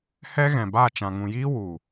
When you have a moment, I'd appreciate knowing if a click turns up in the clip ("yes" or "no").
no